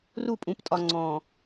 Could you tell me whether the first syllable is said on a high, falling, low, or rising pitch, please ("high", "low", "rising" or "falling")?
falling